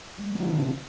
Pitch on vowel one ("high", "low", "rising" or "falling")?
falling